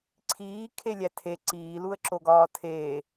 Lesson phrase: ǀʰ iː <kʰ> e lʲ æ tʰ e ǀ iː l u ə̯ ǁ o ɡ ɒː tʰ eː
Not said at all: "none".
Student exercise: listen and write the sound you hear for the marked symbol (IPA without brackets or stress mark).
kʰ